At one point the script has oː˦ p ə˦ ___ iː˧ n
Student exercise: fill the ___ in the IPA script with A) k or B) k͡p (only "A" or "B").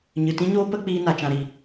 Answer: B